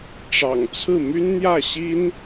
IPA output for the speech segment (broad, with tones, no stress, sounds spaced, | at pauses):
ʈ͡ʂ ɑ̰˨˩ ŋ t͡sʰ ɹ̩˥˩ m y˥ n n̪ j ä˥˩ ɕ i˥ n